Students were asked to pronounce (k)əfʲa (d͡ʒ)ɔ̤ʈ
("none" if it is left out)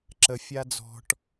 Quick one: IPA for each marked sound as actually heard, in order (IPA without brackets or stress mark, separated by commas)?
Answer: ǁ, d͡z